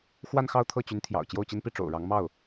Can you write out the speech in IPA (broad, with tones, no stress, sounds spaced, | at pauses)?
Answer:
x w a˥˧ n x ɑ˥˧ ʊ̯ t̪ʰ ɤ˥˩ t͡ɕ y˧˥ n t̪ʰ j ɑ̰˨˩ ʊ̯ t͡ɕ j o˥˩ ʊ̯ t͡ɕ i˥ n p i˥˩ ʈ͡ʂ o̰˨˩ ʊ̯ ɻ ɑ˧˥ ŋ m ɑ˥˩ ʊ̯